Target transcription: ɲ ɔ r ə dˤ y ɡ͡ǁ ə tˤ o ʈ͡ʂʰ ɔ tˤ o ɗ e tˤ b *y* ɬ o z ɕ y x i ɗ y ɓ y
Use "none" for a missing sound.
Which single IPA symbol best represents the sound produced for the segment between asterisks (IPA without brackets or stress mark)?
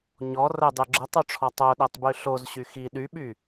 y